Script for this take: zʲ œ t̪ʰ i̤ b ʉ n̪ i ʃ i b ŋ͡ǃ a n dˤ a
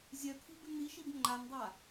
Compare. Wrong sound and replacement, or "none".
none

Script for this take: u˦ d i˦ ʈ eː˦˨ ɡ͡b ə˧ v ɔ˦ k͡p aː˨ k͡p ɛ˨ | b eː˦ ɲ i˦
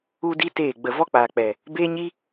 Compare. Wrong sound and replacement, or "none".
ʈ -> t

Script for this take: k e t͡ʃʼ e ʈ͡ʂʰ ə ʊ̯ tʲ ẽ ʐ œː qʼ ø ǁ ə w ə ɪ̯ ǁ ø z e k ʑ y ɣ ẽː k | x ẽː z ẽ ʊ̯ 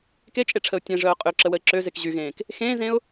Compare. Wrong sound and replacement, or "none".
none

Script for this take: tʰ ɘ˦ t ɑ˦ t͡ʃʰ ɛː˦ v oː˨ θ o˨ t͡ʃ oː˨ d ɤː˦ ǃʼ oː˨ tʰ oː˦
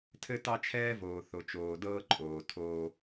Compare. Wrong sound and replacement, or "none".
none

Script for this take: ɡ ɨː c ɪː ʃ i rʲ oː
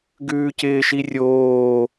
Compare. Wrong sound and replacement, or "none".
ɨː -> ʉː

